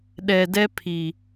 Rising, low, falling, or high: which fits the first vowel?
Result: low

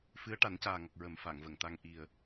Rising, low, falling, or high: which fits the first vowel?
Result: rising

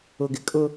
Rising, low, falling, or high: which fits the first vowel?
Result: low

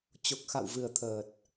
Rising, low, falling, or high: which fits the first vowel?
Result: low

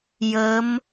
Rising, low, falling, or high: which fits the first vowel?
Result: rising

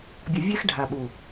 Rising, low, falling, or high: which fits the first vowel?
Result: low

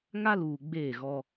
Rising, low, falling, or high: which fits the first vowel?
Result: high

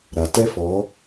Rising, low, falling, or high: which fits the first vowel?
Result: low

